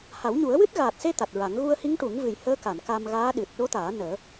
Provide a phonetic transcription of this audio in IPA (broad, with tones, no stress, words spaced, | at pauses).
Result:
ha˨˩˦wɲu˨˩˦ə̯wɨ˦˥t̚ ɣaː˨˩t̚se˧ t̪a˨˩t̚ɹa˨˩˦ŋ ɣu˧ə̯hi˧˥ŋʈu˨˩˦ŋvɨ˨˩j həː˧˥ka˨˩˨n ka˧mɣaː˧˥ ɗɨ˨˩t̚ ɗo˧˥t̪aː˨˩˦ nəː˨˩˦